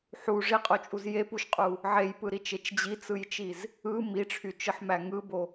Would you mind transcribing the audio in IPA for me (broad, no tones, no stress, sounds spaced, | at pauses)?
ħ u ʐ i qʼ o t͡ʃʼ u z j e p u ʃ qʼ u | ʕ e j p ɯ ɾ i t͡ʃ e t͡ʃ d͡ʑ i t͡s ɯ j t͡ʃ i z | ɯ m i ʈ͡ʂʰ y t͡ʃ ɯ ħ m æ ŋ ɯ b o